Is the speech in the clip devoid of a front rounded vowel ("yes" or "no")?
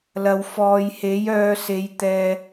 no